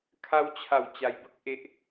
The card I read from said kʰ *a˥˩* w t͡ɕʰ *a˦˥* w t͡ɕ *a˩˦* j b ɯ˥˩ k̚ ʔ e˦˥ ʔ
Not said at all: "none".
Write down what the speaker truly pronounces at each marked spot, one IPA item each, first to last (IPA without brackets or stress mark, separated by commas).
a˦˥, a˨˩, a˧